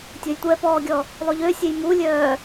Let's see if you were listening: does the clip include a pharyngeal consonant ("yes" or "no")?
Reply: no